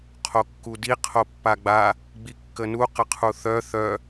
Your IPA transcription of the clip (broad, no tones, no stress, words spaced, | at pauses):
qʰokːudi qʰopːaɡ͡ba | ɡ͡bikːənu qəqʰuθœ θœ